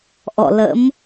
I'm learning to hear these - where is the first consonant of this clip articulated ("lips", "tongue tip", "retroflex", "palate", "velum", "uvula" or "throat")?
throat